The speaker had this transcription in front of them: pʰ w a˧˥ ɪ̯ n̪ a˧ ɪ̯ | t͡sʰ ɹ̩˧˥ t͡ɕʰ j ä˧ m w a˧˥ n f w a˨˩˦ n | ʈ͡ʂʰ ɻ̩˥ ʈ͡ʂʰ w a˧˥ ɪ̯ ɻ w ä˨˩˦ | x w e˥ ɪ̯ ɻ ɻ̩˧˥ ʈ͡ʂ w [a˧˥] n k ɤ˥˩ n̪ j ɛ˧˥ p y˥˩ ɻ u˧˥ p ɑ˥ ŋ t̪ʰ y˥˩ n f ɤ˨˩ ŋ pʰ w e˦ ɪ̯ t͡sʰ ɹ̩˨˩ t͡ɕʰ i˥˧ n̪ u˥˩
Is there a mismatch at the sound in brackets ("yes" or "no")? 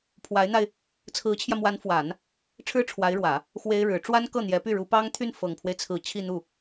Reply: yes